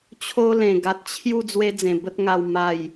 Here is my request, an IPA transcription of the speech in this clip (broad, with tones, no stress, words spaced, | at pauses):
t͡ɕʰo˦lẽ˨˩ ɡa˨t̚t͡ɕʰju˥˧ d͡zwe˦d͡zẽ˨˩ bə˦t̚ŋa˧w ma˨˩j